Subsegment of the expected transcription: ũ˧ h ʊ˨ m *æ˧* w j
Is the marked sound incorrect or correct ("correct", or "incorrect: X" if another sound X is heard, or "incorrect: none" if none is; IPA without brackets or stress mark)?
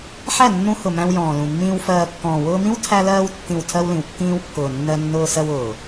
incorrect: æ̃˧